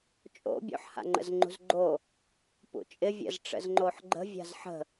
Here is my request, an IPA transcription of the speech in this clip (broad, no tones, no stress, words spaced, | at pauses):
t͡ʃʼo̰ bʲo̰ħha̰ŋ͡ǃə̰zŋ͡ǃṳz ɡ͡ǃo | pṵt͡ʃʼɪ vʲə̰zʈ͡ʂə̰z ŋ͡ǃoħɡ͡ǃə̤ vʲa̤zħə̤